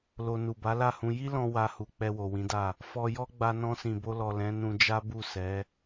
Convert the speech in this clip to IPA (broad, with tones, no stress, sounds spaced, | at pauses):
l o˧ n u˨ b a˨˦ l a˦˨ h ũ˧ j i˦ l ɔ̃˧ w a˧ h u˨ k͡p ɛ˧ w o˨ w ĩ˨˦ d a˦˨ | f ɔ˧ j ɔ˦ ɡ͡b a˧ n ɔ̃˧ s ĩ˨ b o˧ l ɔ˨ l ɛ̃˨˦ n ũ˧ d͡ʒ a˦ b u˦˨ s ɛ˨˦